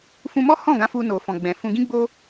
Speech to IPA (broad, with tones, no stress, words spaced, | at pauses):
fũ˧mɔ˦hɔ̃˦˨ɡã˨˦ fu˧no˨fɔ̃˨ɡ͡bɛ̃˨ fũ˧ɡĩ˦ ɡ͡bo˦